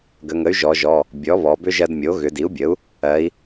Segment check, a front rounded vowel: present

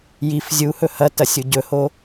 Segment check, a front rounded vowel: absent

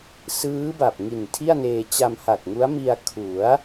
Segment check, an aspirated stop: present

